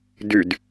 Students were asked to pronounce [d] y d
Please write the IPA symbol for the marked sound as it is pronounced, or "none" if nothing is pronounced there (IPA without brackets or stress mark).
d